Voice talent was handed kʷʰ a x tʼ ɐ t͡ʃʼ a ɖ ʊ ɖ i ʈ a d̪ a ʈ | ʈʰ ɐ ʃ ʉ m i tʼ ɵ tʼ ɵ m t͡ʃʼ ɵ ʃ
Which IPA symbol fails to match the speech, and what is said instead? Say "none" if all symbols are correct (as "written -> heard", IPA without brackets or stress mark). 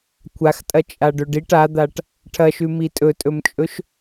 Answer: ʊ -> ɵ